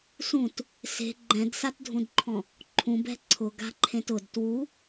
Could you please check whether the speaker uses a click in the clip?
yes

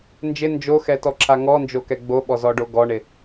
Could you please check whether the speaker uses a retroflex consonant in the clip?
yes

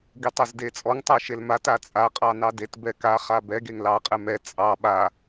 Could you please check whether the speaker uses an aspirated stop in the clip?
no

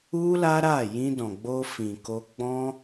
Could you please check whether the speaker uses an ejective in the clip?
no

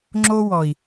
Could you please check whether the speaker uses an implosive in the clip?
no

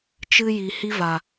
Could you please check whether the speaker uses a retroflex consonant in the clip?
no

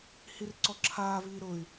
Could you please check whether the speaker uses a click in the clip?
yes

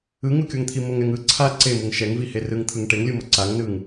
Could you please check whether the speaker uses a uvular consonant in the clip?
no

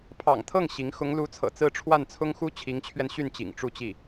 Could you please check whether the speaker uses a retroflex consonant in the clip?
yes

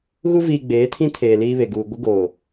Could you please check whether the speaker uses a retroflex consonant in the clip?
no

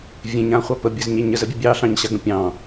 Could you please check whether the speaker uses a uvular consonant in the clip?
yes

